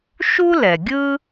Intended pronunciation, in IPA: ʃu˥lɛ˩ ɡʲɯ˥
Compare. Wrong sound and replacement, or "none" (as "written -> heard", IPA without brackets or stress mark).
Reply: none